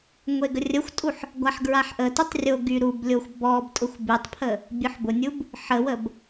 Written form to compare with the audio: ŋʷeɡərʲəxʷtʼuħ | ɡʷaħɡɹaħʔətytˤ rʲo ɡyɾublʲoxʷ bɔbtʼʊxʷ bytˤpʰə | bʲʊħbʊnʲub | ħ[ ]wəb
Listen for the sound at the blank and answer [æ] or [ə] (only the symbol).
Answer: ə